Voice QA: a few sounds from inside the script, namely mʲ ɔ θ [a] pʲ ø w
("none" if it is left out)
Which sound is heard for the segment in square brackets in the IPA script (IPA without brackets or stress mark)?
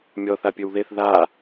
a